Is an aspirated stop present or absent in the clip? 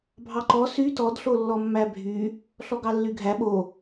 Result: absent